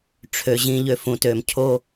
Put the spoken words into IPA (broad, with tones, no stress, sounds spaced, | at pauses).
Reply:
ʈ͡ʂʰ ø˨ ʑ ĩ˨ ʎ ø˨ f ũ˨ t ø˨ m cʰ o˦